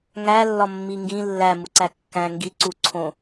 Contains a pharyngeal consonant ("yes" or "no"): no